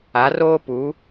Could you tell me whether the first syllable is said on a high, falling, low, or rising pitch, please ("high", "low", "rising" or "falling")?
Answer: rising